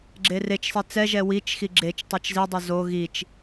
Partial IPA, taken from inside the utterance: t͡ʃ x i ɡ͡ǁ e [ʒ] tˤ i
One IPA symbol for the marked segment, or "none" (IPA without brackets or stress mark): t͡ʃ